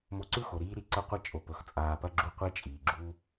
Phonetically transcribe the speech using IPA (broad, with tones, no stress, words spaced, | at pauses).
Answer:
mo˧ǀʉ˦xo˨ ɾiː˦ɾi˦ǀɐ˦qʷɐ˦ t͡ʃʼo˨pɵ˨x t͡sʼaː˧pɐ˦ɡ͡ǁu˦ qʷe˦t͡ʃʼiː˨ɡ͡ǁu˦